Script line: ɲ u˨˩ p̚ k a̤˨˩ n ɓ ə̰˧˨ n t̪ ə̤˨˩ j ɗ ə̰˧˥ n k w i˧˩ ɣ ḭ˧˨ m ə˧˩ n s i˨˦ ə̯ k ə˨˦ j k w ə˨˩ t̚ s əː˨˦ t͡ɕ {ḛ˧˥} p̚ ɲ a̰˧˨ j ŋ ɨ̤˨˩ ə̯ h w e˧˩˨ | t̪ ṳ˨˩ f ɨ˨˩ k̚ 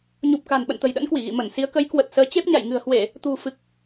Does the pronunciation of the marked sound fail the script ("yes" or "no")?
yes